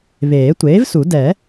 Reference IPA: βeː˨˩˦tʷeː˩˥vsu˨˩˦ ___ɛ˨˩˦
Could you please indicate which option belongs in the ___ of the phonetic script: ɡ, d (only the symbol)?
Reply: d